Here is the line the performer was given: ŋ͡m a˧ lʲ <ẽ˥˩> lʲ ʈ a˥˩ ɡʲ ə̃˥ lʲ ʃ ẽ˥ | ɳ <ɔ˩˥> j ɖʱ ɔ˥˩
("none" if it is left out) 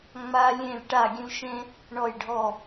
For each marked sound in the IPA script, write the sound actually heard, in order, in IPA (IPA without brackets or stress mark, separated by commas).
ẽ˥˩, ɔ˥˩